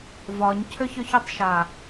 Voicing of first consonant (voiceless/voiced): voiced